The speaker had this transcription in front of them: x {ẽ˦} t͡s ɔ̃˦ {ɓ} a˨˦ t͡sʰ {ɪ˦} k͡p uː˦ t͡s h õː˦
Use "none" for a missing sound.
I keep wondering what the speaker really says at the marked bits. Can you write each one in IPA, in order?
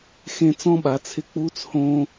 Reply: ẽ˦, ɓ, ɪ˦

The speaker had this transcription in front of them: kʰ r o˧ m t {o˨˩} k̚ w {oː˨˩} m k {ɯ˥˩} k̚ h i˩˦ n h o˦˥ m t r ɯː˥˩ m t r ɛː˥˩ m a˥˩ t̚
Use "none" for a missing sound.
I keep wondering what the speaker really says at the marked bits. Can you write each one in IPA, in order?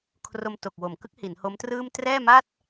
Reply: o˨˩, o˨˩, ɯ˦˥

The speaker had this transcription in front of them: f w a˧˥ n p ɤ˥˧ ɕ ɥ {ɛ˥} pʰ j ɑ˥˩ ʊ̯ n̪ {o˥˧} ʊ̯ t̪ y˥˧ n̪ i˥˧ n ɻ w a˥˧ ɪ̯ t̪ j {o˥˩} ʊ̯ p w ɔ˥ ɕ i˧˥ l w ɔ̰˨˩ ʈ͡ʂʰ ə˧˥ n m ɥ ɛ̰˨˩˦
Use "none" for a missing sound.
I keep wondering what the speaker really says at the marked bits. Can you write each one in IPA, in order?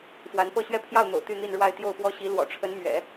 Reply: ɛ˥˧, o̰˨˩, o˥˩

